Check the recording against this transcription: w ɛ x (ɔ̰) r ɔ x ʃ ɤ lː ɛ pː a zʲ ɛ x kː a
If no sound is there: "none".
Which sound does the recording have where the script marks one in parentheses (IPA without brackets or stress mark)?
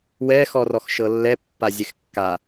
ɔ